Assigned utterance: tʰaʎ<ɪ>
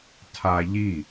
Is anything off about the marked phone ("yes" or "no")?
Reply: yes